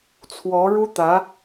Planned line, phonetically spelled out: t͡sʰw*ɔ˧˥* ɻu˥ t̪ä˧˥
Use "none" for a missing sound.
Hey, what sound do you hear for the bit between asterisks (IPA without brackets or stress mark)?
ɔ˧˥